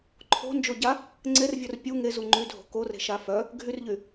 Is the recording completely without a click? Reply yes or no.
no